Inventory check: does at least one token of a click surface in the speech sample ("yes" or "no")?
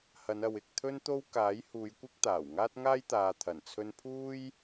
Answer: no